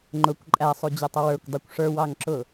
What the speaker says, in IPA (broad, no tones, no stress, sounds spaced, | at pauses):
ŋ͡ǃ ʊ kʷ ǃʼ æ sˤ u d͡ʑ ʊ tˤ ʌ w ə˞ kʷ dˤ u kʷ ʂ ə˞ w ɑ ŋ ǁ ʊ